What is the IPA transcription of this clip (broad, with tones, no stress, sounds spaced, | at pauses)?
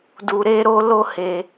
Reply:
d u˧ ɾ e˦ ɾ o˦ l o˦ h e˧